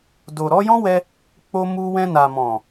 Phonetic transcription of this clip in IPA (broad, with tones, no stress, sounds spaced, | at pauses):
d o˨ ɾ ɔ˨˦ j ɔ̃˦ w ɛ˧ | k͡p o˧ m u˧ w ɛ̃˧ n a˨ m ɔ̃˨